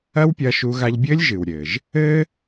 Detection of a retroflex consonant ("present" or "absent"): absent